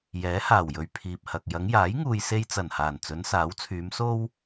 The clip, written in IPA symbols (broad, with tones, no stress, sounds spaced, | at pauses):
j ɛː˨˥ h aː˨˩ w j ɵ˨ ɥ pʰ iː˨ p̚ h ɐ˨ k̚ j ɐ˨˧ ŋ j aː˨˥ j ŋ uː˨ j s e˧ j t͡s ɐ˨˩ n h aː˨˩ n t͡s ɵ˨˧ n s aː˨˥ w t͡sʰ yː˨˧ m s o˥ w